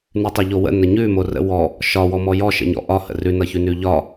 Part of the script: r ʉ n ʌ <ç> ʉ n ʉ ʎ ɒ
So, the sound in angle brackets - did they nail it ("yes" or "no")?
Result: yes